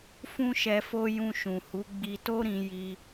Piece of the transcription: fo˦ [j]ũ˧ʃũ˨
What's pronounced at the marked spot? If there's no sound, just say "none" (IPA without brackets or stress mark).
j